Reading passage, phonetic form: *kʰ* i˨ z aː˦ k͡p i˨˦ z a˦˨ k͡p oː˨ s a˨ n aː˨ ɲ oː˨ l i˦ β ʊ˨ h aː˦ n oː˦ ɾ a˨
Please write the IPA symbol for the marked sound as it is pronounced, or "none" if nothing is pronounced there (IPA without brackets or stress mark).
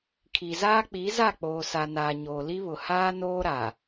kʰ